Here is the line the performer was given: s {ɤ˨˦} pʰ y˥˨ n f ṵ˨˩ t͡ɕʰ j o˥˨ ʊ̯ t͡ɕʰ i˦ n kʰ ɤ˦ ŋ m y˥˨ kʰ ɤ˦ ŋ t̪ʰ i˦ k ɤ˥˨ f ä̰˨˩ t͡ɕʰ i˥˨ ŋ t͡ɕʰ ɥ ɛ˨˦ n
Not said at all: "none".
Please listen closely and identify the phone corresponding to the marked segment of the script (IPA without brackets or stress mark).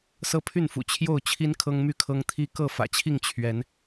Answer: ɤ˦